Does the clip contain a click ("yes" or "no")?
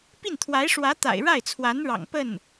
no